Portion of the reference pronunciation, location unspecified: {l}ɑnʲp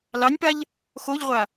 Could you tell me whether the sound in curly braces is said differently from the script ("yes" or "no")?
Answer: no